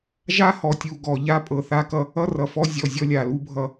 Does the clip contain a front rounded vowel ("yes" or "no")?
no